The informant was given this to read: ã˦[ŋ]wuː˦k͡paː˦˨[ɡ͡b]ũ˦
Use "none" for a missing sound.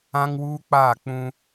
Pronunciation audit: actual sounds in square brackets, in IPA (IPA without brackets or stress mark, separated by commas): ŋ, k͡p